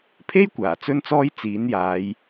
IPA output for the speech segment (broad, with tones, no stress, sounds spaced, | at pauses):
pʰ e˥ j kʷ aː˨˩ t͡s ɵ˥ n t͡s ɔː˥ j t͡s iː˨˥ n j aː˨˧ j